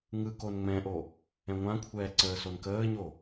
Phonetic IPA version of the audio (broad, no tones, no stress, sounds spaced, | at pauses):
ŋ ɯ k o n ŋ͡m ɛ̃ ʔ o | ɛ̃ ŋʷ ã kʷʰ ɛː ǀ əː s o n k əː ɲ o